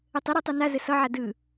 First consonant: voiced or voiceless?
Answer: voiceless